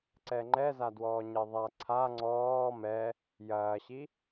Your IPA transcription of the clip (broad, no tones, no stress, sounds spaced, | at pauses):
ǀ ɛ ŋ͡ǃ ɛ z a d w ɔː ɲ e ðˤ a ǀʰ a ŋ͡ǀ ɔː m ɛ | j ɐː ɕ i